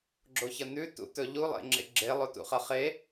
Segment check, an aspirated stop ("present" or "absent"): absent